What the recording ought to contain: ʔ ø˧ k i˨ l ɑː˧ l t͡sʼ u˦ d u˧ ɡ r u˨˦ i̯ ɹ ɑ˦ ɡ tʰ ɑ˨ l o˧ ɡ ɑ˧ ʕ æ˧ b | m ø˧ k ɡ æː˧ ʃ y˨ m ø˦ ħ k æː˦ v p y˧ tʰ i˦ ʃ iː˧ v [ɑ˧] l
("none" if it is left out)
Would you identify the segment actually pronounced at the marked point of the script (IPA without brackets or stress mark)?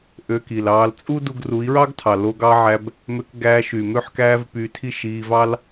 ɑ˦